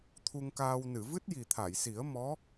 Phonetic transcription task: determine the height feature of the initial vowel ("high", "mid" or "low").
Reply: high